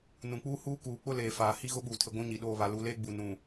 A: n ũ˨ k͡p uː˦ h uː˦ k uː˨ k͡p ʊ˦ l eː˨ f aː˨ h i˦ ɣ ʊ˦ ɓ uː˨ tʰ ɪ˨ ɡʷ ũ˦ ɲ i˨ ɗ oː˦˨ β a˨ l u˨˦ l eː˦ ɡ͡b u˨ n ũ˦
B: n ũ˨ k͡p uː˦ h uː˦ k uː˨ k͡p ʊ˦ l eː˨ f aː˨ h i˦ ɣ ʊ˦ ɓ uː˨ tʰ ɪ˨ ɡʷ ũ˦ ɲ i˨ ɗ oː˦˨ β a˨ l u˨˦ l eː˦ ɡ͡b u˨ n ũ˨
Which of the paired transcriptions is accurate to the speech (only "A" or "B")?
B